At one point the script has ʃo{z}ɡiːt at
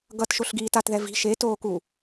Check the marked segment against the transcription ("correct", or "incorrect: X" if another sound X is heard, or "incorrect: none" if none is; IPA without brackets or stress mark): incorrect: ɬ